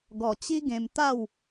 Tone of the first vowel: low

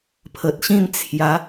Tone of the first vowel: low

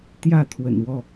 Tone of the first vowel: falling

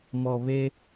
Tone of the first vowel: low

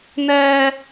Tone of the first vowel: high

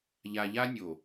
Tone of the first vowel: low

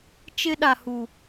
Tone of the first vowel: high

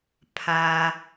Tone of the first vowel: low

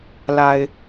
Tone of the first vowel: low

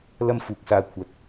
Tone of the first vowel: high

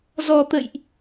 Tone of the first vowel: low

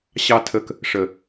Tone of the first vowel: low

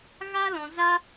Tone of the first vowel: high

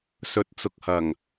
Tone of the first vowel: rising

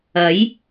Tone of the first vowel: rising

